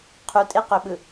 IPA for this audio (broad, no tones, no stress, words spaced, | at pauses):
qʰutʼeqøɓɯ